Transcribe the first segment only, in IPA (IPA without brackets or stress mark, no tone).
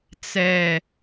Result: t͡s